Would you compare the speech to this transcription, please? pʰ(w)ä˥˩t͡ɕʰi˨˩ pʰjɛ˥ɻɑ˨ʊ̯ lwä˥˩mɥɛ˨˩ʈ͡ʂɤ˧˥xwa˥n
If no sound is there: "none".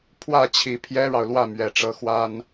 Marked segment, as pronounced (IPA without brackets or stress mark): w